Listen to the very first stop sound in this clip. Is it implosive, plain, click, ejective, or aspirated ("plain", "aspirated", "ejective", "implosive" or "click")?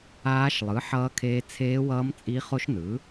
aspirated